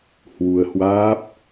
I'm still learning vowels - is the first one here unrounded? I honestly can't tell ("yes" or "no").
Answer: no